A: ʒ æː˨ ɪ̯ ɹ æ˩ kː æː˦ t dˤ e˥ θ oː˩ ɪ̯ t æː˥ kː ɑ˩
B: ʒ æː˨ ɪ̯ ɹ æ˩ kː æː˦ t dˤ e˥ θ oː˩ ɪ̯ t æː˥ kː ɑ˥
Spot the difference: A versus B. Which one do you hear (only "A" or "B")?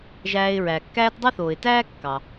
A